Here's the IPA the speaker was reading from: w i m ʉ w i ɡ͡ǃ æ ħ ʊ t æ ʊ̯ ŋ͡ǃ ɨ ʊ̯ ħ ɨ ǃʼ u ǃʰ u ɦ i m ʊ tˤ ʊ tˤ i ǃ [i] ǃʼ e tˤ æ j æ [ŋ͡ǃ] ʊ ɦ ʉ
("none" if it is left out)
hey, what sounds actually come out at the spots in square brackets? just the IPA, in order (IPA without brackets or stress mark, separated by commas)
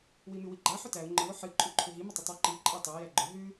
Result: i, ɡ͡ǃ